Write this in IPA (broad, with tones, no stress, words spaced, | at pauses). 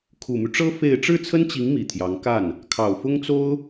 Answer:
kʰu˨˩my˦ʈ͡ʂɤ˥ fe˥˧ɪ̯ ʈ͡ʂɻ̩˥˩t͡sʰə˥nt͡ɕi˧˥ŋ mi˨˩t̪ʰjɑ˧˥ŋ ka˥˩n | kʰɑ˨˩ʊ̯fʊ˥ŋt͡so˥ʊ̯